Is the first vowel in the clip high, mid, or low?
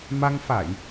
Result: low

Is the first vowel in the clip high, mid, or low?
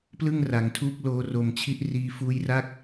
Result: high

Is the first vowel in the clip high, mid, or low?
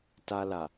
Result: low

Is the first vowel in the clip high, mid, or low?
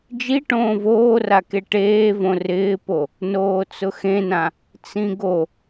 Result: high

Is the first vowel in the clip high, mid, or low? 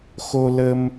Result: mid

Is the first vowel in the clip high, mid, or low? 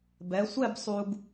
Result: mid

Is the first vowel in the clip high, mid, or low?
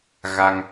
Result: low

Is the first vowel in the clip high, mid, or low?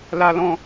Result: low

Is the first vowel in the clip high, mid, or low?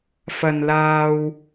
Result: low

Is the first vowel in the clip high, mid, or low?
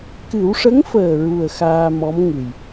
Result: high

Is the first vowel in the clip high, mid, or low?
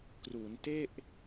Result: high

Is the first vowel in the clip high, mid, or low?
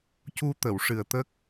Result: high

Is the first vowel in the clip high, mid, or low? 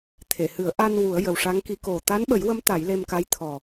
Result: mid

